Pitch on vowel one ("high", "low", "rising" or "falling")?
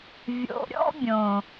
low